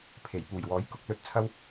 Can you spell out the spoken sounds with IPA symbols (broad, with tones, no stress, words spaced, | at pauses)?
pʰe˨˩jpuː˨˩jwɔː˨˥j kʊ˨k̚lɵ˧t̚t͡sʰɐ˧w